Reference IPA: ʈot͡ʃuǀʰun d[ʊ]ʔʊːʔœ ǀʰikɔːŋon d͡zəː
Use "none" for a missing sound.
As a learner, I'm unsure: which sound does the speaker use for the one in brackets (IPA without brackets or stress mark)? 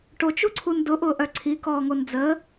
ʊ